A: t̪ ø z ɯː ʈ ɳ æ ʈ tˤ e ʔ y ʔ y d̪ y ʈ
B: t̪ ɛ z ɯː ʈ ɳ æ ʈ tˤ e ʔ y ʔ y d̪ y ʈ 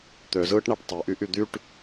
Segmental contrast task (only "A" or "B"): A